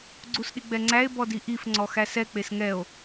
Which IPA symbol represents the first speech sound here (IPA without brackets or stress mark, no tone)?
ɡ͡ǀ